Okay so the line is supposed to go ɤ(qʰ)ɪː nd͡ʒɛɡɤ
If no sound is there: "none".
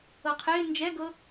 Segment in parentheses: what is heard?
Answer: qʰ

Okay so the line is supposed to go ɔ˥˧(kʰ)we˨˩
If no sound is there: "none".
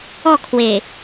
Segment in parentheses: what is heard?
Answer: kʰ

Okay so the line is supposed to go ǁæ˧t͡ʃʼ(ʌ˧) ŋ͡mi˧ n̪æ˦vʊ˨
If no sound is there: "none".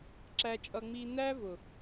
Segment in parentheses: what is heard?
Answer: ʌ˧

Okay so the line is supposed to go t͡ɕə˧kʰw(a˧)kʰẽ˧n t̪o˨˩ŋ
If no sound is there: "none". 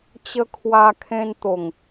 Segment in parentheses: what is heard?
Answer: a˧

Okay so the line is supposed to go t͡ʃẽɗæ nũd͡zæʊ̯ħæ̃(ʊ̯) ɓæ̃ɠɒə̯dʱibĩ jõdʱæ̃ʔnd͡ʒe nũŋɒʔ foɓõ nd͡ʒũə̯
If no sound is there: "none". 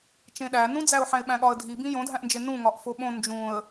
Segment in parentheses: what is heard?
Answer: ɪ̯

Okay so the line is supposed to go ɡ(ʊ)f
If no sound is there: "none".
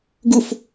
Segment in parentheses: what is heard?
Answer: u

